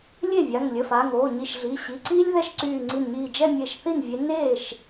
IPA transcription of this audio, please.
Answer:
lʲ e˥˩ vʲ a˩˧˩ ŋ lʲ ə˩˧˩ f aː˩˧˩ ŋ oː˩˧˩ ɲ i˧˩ ʃ ɮ iː˩˧˩ ɕ i˩˧˩ ǀ iː˥ lʲ ð ɛ˥˧ ʃ ǀ yː˧˩ ŋ͡ǀ i˧˩ n ɲ iː˧˩ d͡ʒ ɛ˥˧ mʲ e˧˩ ʃ θ i˥˩ n vʲ e˨˦ n eː˥˩ ʃ

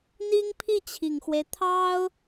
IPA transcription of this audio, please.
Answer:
n̪ i˥ ŋ pʰ i˥˩ t͡ɕʰ i˨˩ ŋ x w e˦ ɪ̯ t̪ʰ ɑ˥ ʊ̯

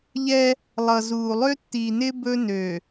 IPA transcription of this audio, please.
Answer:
ʎ ɛ˦ | lˠ ʌ˨ z uː˨ lˠ ø˦ tː iː˨ n ɪː˦ b ɵ˦ n ø˨

